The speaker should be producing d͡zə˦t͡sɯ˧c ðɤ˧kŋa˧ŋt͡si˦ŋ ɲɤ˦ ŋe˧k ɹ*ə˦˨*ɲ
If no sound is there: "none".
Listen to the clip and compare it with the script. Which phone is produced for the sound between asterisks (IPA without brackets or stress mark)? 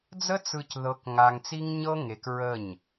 ə˦˨